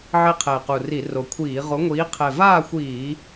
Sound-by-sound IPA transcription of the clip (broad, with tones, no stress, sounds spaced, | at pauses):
ʕ e˦˥ qʰ ɛ˨˩ ɪ̯ q u˨˩ r i˧˩˧ r o˨˩ kʷʰ iː˧˩˧ ʁ o˨˥ ŋʷ iː˨˥ qʰ ɛ˨˩ v aː˥˨ xʷ iː˧˩˧